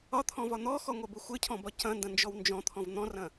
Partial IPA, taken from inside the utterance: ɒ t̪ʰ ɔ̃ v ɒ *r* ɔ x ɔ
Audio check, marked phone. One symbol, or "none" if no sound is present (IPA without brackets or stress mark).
n̪